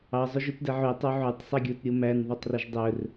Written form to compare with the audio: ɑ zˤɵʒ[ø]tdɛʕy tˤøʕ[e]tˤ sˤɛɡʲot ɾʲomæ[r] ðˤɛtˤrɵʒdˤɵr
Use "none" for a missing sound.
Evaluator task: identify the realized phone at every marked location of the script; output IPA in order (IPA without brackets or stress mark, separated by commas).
ʉ, y, n